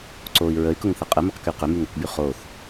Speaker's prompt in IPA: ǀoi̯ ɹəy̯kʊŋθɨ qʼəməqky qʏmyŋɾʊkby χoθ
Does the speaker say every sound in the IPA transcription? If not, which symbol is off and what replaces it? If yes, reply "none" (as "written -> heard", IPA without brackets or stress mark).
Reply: ɨ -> ə